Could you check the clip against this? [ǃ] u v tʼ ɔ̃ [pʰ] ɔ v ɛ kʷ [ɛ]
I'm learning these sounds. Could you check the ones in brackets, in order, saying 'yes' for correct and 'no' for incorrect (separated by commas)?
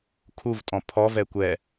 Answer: no, yes, yes